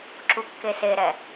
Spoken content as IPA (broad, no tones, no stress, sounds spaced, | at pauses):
ǁ u kː e s e ɾ ɛ